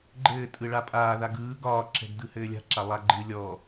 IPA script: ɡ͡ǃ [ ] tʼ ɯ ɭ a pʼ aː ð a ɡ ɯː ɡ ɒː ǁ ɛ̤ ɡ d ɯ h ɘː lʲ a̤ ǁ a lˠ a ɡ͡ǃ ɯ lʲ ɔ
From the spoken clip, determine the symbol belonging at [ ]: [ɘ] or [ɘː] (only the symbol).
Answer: ɘː